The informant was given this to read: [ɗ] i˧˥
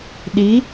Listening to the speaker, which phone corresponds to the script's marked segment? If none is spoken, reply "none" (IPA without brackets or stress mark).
ɗ